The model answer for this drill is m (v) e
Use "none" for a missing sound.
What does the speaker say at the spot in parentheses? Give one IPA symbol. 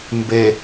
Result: b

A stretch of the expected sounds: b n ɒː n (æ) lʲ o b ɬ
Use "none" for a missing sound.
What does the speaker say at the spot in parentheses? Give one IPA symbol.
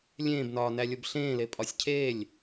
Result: æ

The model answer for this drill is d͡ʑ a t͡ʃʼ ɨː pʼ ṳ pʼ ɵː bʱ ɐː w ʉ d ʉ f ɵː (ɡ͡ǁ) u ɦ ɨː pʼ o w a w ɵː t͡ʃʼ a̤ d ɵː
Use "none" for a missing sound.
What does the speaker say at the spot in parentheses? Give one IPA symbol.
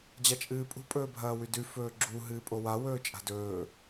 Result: ɡ͡ǁ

